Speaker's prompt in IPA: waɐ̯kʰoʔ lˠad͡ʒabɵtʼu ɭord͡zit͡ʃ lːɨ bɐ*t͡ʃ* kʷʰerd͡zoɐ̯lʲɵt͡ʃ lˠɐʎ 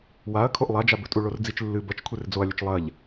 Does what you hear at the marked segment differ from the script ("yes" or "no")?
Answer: no